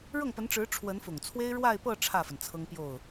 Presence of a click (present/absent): absent